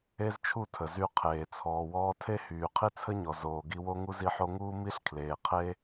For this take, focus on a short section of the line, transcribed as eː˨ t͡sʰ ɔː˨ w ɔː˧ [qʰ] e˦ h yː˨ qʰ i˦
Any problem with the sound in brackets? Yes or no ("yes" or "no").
yes